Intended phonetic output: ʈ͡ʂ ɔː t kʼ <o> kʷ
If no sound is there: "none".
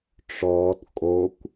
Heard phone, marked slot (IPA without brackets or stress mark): o